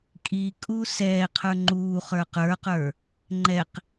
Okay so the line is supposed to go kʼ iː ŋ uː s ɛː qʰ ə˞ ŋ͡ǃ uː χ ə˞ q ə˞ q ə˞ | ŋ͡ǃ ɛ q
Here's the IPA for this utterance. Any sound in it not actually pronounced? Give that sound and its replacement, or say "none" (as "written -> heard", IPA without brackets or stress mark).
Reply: ŋ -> kʼ